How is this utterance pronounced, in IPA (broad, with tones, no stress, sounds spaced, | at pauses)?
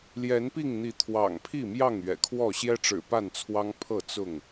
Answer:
l j ɛ˨˦ n p i˥˨ ŋ n̪ i˨˦ t̪ʰ w ɑ̰˨˩ ŋ pʰ i˥˨ m j ɑ˥˨ ŋ ɥ ɛ̰˨˩ kʰ w ɔ˥˨ ɕ j ɛ˦ ʈ͡ʂ ɻ̩˨˩ p a˥˨ n t͡sʰ w ɑ˦ ŋ pʰ ɤ˥˨ t͡s ʊ˥˨ ŋ